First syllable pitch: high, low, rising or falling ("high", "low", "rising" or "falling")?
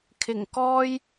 low